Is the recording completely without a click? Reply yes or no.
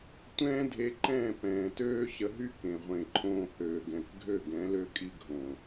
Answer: no